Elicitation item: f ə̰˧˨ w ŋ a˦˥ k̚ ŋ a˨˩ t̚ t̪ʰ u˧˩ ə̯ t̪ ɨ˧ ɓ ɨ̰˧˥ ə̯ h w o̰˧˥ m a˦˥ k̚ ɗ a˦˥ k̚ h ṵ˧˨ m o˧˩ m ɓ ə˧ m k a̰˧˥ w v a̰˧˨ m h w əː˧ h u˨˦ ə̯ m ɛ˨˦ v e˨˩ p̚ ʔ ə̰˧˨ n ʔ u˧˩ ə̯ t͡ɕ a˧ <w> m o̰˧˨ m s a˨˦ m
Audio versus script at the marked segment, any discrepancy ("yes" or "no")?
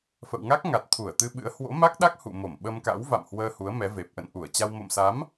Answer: no